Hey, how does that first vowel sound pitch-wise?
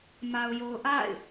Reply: low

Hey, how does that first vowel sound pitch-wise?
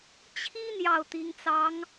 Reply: high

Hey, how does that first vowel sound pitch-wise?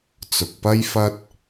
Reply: low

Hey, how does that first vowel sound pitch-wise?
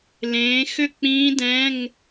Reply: rising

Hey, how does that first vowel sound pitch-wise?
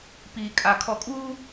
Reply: low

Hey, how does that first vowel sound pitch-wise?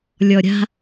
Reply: low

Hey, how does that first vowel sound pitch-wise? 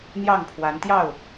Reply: falling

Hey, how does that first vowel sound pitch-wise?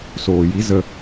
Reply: low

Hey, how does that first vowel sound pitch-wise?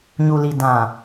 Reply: low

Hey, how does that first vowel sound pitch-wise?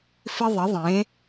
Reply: high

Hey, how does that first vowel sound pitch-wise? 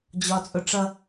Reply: high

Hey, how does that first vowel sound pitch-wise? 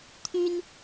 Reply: high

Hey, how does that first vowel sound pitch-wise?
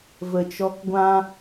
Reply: low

